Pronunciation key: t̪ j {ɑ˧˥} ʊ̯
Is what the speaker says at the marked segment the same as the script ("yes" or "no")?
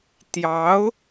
yes